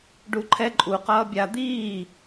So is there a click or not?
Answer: yes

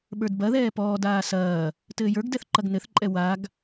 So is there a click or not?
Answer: yes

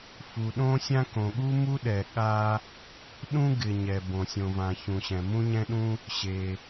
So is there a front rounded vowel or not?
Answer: no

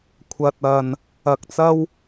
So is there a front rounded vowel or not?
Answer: no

